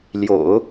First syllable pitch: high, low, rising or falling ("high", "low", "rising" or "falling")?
low